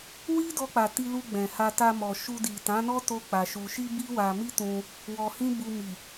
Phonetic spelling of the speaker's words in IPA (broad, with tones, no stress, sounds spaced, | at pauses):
w i˦ d ɔ˧ k͡p a˨ t i˧ l u˧ ɡ͡b ɛ̃˨ h a˧ t a˧ m ɔ˨ ʃ u˧ d i˨ t ã˨˦ n ɔ˦ t o˦ k͡p a˧ ʃ u˧ ʃ i˦ b i˦ w a˧ m i˦ t ũ˧ | w ɔ˧ h ĩ˦ b u˧ m i˨